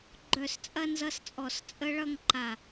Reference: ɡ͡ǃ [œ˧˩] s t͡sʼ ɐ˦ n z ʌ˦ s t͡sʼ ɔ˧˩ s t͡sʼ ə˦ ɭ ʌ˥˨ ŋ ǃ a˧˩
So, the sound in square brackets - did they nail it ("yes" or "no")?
yes